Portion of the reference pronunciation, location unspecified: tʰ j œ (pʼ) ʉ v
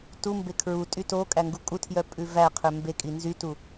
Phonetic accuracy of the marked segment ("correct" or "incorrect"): correct